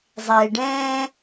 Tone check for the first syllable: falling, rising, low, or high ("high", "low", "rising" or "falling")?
low